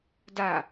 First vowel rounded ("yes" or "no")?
no